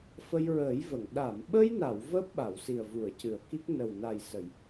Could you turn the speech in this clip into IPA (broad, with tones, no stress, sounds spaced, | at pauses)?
f ə˧ j ɹ əː˨˩˦ j v ə˨˩˨ ŋ ɗ a˨˩˨ m ɓ ə˧ j n a˨˩˨ w v əː˦˥ p̚ ɓ a˨˩˨ w s i˨˩ ə̯ v u˨˩˨ ə̯ c ɨ˨˩˨ ə̯ k i˦˥ k̚ n ə˨˩ w n a˨˩ j s ə˨˩˨ j